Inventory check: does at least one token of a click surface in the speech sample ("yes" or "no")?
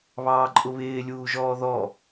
yes